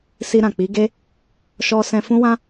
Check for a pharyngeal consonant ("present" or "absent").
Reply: absent